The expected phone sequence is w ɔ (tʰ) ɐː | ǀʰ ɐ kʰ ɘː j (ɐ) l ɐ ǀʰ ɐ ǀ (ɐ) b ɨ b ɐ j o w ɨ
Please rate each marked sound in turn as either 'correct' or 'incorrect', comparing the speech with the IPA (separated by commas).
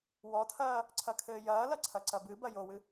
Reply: correct, incorrect, correct